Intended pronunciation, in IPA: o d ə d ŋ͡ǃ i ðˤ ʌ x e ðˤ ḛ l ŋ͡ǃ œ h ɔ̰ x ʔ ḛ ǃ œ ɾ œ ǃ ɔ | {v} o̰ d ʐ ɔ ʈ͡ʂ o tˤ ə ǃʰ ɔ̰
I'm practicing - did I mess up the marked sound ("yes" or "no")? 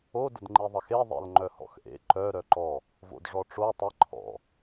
no